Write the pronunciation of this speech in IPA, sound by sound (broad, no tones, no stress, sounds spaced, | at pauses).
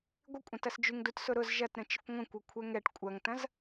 ɡʷ ɪ kʷʼ ɐ̃ t ɐ s d͡ʒ y ŋ d u t s ʊ ɾ ʊ z ʒ ɐ t ɾ ə̃ t͡ʃ ɪ kʷ ŋʷ ə̃ kʷ ɐ kʷʰ ɛ ŋ ɛ ʈ kʷʼ ɐ ŋ t ɐ̃ z